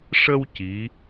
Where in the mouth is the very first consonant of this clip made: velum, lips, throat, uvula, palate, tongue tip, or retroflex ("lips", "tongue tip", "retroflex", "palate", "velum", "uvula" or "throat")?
retroflex